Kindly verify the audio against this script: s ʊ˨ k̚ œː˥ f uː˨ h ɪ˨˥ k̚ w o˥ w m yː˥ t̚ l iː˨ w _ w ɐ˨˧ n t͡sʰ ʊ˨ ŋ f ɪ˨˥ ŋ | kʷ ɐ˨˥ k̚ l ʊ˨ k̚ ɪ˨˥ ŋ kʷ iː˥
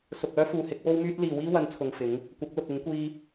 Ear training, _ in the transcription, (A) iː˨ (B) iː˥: B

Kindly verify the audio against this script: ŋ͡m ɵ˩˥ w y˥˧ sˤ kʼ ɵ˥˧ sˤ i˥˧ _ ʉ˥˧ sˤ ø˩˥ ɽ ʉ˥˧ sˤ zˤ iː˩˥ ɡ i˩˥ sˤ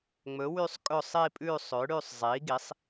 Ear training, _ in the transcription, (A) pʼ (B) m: A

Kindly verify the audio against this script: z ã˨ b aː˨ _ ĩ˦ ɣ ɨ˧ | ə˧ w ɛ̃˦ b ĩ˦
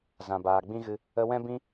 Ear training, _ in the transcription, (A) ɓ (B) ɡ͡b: B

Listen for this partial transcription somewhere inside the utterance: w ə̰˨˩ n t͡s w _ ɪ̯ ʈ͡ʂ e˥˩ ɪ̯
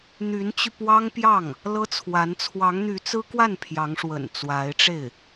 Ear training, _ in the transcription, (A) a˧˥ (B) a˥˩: A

